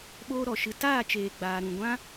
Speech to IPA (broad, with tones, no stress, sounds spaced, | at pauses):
ɓ oː˧ ɾ ɔ˨ ʃ ɨ˧ t aː˦˨ t͡ʃ eː˨ ɡ͡b aː˨ ɾ ũ˨ ɡʷ ã˦